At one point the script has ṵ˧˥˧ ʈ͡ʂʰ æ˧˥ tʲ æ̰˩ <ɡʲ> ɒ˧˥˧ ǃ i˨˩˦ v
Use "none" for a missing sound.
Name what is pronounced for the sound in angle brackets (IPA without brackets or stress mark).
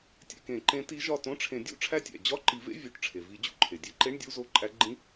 d͡ʑ